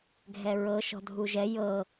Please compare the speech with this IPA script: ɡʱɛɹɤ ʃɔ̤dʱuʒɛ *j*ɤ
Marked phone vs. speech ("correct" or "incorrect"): correct